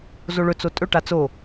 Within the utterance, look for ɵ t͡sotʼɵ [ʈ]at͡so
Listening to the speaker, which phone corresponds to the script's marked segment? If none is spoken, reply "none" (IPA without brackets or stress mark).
ʈ